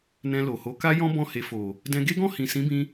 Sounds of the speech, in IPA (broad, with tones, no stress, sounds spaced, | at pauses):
n ɛ̃˧ l o˨ h o˨˦ k a˦ j ɔ̃˦ b ɔ̃˦˨ h e˧ f o˨ | d ɛ̃˧ ɡ e˦ ɡ ɔ̃˦˨ h ĩ˨ s ĩ˨˦ b ĩ˧